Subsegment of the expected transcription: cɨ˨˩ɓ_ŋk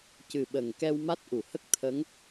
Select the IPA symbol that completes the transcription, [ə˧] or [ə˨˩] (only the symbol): ə˨˩